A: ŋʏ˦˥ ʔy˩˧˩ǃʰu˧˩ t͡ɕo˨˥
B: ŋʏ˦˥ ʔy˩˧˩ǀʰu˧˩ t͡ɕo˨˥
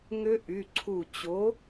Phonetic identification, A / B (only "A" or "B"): B